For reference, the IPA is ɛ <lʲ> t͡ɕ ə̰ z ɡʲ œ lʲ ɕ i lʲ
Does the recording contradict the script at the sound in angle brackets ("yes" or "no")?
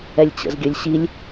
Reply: no